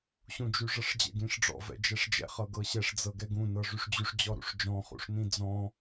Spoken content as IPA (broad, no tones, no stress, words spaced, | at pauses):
ɕũd͡ʒyʐɤʂd͡ʑɛ̰ ɡĩʂɖ͡ʐɔ̰ vɛ̰d͡ʒɛʂd͡ʒɛ̰ χɤɡɤɕɛʂ d͡zɤɡɛɡũ nɤʐyʂd͡ʑyʂ d͡ʑɔɾṵʂd͡ʒɔ̃ χṵʂnĩd͡zɔ̃